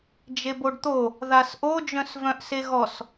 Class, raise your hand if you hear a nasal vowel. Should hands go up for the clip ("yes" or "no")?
yes